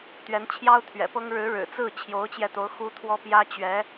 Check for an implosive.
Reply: absent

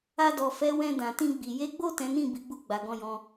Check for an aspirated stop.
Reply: absent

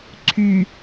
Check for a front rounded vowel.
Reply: present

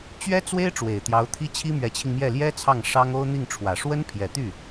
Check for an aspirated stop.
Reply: present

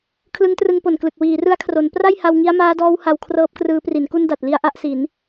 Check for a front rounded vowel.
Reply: absent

